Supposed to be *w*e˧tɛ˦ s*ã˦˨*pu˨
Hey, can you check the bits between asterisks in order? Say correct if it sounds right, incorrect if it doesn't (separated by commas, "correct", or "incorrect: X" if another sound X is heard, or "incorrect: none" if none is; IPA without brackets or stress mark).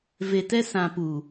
incorrect: v, incorrect: ã˨